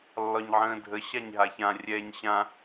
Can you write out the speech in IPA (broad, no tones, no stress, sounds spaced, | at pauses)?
lː ɒ ɲ ʕ ə̃ː dʱ ə ɕ a ɲ ɦ a ç ã rʲ ɛː ɲ ɕ ã